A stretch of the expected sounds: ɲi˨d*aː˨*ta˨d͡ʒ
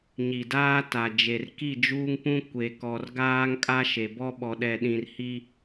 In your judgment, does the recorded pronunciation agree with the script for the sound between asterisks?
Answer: no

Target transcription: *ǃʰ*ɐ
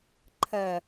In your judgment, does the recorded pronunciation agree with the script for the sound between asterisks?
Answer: yes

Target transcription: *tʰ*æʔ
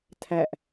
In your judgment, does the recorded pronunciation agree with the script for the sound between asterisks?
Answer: yes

